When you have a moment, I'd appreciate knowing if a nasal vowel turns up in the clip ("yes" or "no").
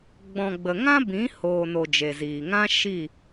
yes